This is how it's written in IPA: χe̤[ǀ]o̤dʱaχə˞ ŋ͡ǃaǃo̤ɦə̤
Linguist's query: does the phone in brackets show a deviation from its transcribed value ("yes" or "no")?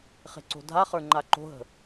no